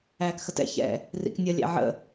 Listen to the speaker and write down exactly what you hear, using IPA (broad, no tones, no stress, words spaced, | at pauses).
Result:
æːkxətɛ̰ çɛ̰ | rḭknʲʌ lʲæ̰ʕə̰